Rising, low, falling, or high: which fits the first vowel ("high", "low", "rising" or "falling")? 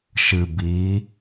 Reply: low